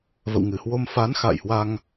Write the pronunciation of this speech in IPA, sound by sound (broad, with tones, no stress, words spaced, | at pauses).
və̰˧˨wŋɨ˧˩hwo˧m fa˨˦n xa̰˧˨jhwa˧ŋ